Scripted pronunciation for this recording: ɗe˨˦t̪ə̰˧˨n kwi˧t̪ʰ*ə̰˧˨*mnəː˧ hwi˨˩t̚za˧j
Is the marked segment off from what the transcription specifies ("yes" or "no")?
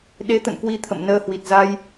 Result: no